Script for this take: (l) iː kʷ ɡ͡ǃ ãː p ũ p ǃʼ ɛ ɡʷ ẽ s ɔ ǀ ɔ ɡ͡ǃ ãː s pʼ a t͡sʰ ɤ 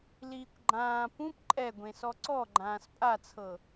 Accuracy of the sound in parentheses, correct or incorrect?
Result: correct